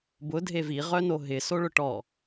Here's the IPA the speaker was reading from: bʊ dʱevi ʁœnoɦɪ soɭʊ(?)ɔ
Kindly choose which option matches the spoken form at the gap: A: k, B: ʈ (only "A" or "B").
B